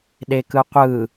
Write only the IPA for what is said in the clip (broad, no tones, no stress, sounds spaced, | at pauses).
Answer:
ɗ e k ɯ qʷ ɯ